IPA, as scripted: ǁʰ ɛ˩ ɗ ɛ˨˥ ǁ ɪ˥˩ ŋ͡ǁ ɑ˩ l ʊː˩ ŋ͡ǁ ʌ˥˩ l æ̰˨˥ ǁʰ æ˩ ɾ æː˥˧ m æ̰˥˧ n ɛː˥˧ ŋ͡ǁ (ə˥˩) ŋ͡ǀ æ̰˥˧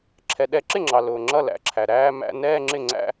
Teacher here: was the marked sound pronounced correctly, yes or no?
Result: no